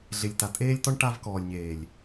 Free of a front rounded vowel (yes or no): yes